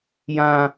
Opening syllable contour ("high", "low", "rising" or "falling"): high